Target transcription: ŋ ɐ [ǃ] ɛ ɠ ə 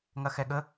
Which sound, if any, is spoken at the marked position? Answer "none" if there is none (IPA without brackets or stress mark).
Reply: x